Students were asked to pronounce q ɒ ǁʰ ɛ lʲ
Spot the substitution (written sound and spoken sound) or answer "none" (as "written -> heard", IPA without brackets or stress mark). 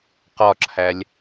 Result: ɛ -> æ